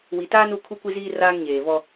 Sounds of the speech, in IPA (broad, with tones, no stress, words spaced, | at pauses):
wi˨taː˦nu˦˨ kʰu˦kʷi˦ziː˦ raː˦ŋɲeː˨vɔ˦